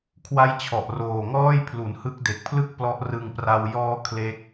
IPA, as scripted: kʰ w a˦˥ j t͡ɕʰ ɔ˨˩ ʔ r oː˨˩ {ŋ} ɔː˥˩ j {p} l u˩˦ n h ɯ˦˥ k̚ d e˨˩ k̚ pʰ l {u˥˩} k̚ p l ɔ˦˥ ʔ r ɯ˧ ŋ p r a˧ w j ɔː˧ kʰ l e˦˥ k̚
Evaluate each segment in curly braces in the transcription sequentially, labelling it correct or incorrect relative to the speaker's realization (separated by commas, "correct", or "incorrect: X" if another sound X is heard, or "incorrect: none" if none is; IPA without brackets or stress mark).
correct, incorrect: pʰ, incorrect: ɯ˥˩